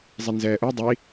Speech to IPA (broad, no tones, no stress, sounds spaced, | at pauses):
zˤ i n z ɛː ʔ u dˤ i